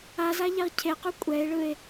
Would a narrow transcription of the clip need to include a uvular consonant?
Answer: yes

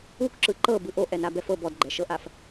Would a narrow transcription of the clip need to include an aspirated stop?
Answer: no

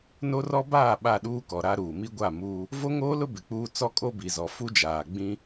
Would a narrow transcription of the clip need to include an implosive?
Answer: yes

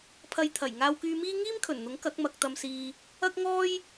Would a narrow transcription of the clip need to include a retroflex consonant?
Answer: no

